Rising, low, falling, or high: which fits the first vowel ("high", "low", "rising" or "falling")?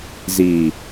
low